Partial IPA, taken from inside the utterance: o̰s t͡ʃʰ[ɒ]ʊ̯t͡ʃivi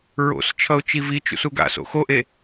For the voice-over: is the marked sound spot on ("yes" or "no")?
no